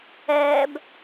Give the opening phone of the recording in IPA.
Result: ɛː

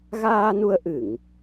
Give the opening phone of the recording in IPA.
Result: ɣ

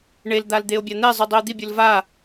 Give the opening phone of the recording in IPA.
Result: ɳ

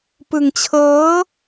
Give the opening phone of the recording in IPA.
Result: p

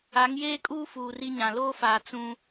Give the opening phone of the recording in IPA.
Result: a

